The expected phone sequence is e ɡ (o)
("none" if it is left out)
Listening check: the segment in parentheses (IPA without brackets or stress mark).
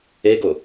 o